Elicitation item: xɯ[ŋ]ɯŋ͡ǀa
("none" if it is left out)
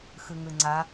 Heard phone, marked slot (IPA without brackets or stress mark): ŋ